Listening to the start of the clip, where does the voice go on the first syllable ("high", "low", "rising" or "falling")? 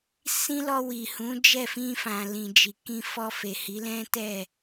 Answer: high